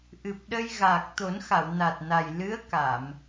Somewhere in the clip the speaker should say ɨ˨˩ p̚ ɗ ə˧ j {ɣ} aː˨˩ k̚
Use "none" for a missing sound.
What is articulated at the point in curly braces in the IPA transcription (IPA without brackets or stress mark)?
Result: ɣ